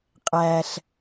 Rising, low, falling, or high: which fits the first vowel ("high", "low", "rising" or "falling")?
low